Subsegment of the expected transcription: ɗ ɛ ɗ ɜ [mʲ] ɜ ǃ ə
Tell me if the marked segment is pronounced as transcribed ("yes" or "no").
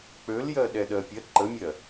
no